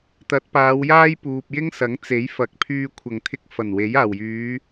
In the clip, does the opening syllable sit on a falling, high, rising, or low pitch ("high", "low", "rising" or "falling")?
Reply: rising